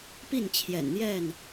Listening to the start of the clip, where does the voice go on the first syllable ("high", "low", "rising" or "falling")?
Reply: falling